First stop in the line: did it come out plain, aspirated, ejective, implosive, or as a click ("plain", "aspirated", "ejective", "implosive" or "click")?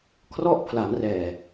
aspirated